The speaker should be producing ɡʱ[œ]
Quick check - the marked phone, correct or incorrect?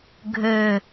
incorrect